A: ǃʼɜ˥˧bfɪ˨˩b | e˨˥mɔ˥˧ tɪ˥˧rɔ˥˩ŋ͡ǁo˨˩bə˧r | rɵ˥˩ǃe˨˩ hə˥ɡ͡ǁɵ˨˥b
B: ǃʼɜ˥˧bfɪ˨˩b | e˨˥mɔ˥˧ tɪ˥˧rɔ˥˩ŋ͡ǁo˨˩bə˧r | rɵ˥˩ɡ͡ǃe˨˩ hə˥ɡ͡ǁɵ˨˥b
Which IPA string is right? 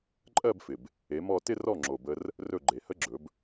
B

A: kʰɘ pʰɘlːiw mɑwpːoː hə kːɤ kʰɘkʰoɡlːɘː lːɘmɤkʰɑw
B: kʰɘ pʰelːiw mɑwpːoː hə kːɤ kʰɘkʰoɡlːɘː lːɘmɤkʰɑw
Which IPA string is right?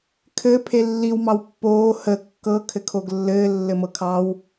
B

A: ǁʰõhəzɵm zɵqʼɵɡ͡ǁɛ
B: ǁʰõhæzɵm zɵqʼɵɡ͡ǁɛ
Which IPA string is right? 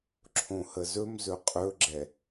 A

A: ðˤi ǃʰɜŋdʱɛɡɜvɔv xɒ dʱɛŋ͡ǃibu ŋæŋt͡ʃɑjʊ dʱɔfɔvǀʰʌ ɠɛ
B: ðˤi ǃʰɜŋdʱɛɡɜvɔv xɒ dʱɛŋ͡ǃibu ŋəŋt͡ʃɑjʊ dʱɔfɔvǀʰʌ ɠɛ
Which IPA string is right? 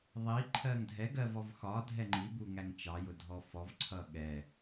A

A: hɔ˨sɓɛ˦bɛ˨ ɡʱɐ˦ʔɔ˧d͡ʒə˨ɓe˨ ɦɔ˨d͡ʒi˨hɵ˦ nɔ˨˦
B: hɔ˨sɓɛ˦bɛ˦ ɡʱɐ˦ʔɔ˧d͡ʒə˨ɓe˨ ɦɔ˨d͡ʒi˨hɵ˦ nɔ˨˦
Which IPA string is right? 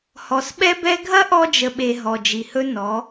B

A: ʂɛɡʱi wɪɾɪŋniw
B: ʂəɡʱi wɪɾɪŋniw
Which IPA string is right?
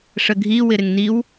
B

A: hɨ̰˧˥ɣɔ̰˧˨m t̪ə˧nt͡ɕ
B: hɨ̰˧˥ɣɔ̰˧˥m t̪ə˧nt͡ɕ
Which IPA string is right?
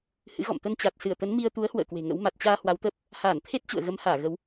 A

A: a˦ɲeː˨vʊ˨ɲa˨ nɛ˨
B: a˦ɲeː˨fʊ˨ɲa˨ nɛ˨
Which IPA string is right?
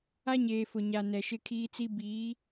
B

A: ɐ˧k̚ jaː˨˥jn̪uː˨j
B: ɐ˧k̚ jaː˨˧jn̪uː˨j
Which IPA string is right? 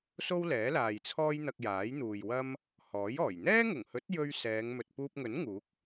A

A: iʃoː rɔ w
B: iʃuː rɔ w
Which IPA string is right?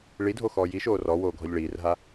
A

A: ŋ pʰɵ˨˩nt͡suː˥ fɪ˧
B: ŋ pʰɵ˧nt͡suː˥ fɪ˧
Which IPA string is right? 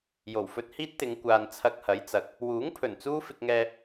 A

